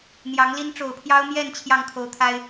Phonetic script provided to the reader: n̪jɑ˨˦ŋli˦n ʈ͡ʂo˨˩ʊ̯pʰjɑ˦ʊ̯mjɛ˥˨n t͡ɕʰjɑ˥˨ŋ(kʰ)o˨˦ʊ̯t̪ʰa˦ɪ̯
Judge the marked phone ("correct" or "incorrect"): correct